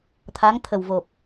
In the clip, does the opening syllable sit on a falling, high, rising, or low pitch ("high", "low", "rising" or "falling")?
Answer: rising